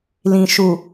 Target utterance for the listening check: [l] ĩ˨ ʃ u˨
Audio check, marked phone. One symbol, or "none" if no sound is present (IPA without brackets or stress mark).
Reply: l